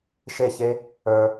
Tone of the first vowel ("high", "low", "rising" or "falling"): falling